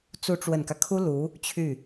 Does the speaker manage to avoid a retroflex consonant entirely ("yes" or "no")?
no